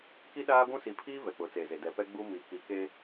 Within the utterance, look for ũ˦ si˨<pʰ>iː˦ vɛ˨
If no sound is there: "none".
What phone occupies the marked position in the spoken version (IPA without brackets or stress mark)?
pʰ